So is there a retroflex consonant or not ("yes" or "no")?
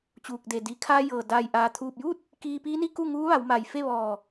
no